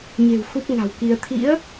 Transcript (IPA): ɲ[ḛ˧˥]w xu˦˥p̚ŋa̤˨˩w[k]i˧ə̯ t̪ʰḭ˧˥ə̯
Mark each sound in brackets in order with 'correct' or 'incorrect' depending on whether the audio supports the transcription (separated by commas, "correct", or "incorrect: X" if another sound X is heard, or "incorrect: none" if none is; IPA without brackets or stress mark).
incorrect: e̤˨˩, correct